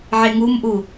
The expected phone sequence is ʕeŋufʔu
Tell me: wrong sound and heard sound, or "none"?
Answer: f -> m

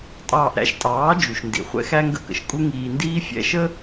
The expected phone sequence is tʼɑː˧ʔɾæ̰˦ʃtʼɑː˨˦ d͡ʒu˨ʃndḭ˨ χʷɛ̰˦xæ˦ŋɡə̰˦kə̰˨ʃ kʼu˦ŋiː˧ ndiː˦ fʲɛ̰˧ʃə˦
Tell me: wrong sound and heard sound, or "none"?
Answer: none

